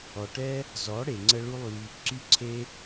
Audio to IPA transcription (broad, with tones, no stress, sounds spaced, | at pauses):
ɔ˨ ʈ ɛ˦ | z ɔ˨˦ ɽ e˨ ŋ͡ǀ ə˧ ɭ u˦ lˠ y˧ | ǀ y˦ ǀʰ e˦